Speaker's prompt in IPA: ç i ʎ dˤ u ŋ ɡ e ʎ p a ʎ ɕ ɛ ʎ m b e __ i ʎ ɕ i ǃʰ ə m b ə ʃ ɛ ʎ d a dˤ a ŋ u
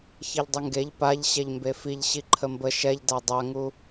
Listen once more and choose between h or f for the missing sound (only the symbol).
f